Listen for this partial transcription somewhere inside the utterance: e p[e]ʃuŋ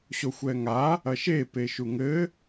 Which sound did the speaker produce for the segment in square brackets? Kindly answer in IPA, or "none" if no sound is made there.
e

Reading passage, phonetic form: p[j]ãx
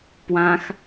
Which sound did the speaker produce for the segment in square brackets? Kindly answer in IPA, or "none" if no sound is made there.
w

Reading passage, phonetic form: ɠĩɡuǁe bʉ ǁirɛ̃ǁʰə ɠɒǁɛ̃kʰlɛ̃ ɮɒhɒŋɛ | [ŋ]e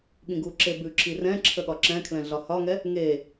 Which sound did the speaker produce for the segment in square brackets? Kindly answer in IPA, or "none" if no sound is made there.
ŋ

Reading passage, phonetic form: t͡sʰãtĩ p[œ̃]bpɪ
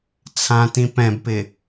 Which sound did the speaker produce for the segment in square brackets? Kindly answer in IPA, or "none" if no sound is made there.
ɛ̃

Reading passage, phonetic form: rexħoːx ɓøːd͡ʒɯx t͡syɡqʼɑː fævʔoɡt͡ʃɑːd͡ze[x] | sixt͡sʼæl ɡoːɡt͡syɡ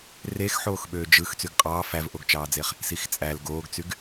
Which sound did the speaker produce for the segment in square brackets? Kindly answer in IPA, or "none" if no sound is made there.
χ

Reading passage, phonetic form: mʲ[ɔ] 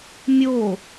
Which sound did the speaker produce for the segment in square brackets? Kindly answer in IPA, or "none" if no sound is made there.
o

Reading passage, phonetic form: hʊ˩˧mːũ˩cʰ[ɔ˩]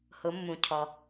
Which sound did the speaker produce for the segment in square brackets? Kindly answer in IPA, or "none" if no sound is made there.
ɔ˩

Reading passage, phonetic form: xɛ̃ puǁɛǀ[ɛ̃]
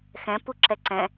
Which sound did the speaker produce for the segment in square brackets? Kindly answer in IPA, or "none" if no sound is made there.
ɛ̃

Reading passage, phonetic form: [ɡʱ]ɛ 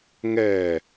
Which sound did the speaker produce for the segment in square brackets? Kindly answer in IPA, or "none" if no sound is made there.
ŋ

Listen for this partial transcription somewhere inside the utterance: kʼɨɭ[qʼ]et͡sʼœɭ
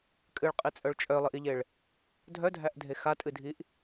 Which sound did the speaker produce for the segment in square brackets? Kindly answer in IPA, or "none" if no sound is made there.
qʼ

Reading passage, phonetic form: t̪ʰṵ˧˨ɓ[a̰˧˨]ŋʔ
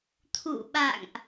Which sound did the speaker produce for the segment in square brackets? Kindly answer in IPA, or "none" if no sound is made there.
a̰˧˨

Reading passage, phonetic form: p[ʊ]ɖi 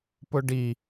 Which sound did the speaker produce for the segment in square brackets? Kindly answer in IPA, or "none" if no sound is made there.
ʊ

